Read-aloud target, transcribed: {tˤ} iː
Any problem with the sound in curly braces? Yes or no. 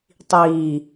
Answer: no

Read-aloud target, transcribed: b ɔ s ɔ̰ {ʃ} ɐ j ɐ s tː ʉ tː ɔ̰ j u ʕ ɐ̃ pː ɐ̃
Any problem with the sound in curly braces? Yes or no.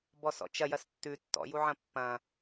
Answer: yes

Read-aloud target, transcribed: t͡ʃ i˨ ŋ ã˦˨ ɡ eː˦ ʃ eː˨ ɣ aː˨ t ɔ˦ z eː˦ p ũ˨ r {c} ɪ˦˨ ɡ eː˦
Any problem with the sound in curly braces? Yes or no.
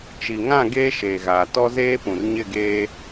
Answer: yes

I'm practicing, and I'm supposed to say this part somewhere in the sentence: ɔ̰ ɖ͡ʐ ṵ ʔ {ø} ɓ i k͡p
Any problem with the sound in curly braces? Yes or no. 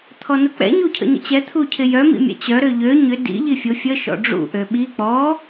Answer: no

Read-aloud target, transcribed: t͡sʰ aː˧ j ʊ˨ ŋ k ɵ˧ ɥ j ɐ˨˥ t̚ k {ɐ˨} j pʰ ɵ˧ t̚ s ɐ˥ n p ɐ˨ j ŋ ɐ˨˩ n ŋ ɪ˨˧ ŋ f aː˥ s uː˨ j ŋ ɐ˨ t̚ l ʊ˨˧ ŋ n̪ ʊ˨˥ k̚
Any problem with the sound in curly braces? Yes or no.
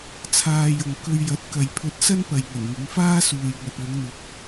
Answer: no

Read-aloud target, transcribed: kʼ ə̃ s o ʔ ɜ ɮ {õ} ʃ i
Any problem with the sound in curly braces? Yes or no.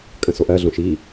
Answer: no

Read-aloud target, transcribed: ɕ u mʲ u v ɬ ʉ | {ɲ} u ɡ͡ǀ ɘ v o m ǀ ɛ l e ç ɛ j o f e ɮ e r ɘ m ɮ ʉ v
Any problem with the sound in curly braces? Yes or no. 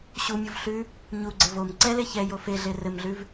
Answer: no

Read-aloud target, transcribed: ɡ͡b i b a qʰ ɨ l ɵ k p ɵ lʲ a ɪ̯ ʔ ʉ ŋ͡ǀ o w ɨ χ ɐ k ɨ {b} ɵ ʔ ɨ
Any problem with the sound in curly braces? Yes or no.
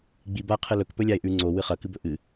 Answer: no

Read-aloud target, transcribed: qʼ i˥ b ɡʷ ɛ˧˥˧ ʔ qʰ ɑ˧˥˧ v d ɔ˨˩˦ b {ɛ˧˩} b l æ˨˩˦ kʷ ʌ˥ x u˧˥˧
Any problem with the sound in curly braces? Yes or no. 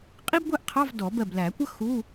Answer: yes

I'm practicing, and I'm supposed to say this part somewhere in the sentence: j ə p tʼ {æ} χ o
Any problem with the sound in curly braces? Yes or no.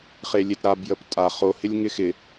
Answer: yes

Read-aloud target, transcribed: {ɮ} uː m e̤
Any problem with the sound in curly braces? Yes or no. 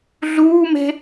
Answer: no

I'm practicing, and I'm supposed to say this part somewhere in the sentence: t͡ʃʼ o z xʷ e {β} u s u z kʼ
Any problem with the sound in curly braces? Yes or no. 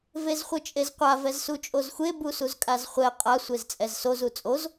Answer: yes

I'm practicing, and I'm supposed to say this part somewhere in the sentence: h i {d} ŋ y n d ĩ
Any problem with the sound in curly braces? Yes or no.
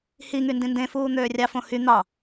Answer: yes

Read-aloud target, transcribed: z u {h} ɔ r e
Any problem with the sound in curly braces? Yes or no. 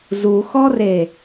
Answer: yes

